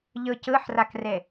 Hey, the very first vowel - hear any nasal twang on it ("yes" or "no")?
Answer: no